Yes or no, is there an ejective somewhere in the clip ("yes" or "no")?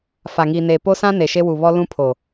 no